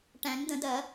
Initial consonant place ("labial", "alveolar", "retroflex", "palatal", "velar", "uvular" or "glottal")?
retroflex